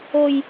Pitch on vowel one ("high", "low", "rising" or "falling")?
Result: high